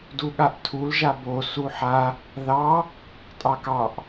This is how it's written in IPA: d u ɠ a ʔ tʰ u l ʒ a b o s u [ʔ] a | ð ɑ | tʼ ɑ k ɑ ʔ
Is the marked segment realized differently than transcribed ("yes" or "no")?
yes